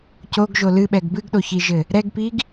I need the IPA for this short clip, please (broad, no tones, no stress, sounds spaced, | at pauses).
c o ɡ ʒ o l ɨ ɓ ɛ ɡ b ɨ ɡ ɗ o ç i ʒ ɘ | ɾ ɛ ɡ p i ɡ